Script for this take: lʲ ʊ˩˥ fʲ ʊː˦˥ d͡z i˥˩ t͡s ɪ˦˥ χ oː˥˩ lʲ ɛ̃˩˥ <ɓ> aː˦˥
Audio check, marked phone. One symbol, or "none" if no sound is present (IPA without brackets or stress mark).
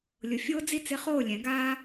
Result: ɡ